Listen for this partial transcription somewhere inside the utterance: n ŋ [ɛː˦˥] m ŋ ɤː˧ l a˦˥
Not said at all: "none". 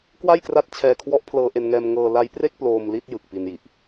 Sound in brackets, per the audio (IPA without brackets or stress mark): ɛː˧